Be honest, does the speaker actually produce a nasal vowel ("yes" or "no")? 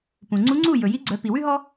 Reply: yes